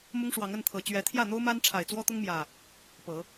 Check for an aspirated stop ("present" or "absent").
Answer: present